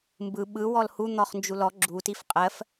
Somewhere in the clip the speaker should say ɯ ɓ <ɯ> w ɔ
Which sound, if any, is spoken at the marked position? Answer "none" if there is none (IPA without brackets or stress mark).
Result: ɯ